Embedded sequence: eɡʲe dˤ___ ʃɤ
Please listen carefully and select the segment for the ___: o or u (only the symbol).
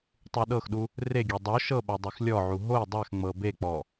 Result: o